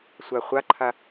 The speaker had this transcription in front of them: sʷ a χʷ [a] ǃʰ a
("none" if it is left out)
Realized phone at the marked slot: a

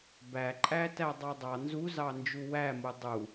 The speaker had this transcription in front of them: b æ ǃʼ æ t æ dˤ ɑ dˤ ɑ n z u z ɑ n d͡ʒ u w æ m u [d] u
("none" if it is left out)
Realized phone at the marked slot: dˤ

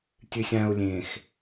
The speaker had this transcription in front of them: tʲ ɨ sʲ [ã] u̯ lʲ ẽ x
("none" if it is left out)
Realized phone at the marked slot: ã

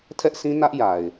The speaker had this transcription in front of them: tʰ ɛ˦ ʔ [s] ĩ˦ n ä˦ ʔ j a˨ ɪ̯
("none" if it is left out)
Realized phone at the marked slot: s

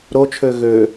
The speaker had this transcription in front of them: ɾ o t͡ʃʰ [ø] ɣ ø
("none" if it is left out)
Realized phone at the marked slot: ø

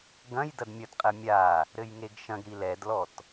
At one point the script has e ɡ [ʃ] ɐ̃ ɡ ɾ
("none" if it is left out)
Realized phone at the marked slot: ʃ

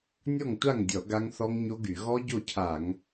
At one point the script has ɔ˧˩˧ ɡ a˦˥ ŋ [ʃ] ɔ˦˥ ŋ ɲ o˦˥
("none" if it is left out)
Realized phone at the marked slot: θ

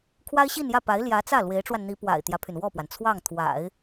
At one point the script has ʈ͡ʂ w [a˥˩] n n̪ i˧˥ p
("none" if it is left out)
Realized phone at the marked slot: a˧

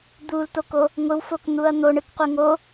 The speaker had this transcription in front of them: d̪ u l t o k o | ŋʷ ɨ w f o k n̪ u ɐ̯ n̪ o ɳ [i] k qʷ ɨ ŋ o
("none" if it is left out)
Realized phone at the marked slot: ɨ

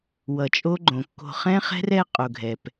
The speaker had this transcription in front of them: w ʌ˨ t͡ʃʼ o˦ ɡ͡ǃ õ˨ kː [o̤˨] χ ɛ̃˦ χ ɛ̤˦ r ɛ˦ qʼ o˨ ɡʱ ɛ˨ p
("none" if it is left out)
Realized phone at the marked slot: o̤˨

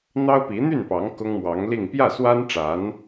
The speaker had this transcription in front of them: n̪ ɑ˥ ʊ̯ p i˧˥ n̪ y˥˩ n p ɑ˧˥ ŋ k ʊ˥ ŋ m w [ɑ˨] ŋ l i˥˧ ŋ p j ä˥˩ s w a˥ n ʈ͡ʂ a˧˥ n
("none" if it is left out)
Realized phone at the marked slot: ɑ˧˥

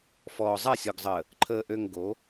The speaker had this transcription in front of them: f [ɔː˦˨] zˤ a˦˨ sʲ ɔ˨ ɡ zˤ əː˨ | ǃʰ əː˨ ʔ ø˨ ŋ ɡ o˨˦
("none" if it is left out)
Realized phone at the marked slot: ɔː˨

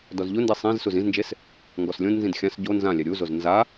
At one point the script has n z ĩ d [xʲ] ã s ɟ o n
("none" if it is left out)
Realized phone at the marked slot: xʲ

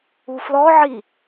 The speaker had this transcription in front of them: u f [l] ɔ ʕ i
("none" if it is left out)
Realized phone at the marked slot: l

